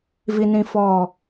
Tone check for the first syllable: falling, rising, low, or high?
high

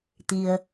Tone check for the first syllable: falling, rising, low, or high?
low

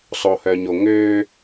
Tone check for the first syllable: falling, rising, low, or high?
low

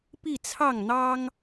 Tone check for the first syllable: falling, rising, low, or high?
falling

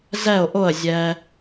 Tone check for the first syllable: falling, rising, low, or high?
falling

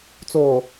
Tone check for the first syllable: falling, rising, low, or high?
low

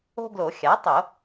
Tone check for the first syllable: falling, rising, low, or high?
high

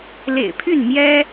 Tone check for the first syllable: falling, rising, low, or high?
low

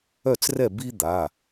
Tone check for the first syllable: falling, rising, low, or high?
falling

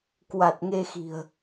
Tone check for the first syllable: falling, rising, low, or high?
low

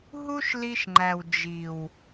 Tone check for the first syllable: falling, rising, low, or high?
high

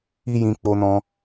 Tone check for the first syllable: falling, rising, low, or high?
high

